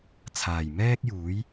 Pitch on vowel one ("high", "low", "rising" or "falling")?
low